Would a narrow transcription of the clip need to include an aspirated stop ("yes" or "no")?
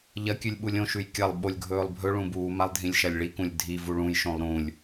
no